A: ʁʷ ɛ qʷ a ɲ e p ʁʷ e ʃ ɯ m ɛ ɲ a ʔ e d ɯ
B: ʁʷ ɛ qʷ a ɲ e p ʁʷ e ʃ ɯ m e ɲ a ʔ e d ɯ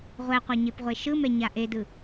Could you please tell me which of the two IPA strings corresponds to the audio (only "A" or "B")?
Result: A